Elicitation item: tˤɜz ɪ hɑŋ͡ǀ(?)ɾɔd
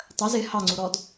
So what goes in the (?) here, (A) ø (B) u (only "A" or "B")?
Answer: B